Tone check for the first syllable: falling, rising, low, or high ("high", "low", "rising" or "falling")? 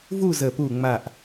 falling